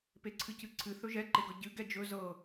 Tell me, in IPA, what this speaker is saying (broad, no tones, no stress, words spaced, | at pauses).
peǀʰɨcɨǀʰɨ θɵʒɛ ǃeɡɤɟɨ ɡɛd͡ʒɵ zɤ